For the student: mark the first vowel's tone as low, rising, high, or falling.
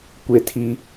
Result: high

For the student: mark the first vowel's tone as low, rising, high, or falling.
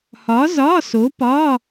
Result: rising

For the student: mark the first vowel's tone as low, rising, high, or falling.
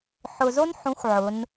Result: low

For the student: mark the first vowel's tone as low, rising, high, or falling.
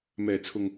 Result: low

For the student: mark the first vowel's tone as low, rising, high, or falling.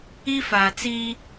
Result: high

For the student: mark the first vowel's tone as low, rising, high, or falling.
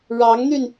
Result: rising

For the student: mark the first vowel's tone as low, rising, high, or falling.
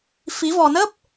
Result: rising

